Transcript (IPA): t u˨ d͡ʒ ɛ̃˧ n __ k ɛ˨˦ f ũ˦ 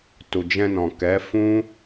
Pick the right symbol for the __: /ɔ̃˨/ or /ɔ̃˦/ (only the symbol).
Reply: ɔ̃˨